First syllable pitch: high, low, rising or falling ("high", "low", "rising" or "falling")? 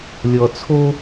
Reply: low